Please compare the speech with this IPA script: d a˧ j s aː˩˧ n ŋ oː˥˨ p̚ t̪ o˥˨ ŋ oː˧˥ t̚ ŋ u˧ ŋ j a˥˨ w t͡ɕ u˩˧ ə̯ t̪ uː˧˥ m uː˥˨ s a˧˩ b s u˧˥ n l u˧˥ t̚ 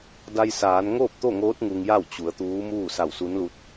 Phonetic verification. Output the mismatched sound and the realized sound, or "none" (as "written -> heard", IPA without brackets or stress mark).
b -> w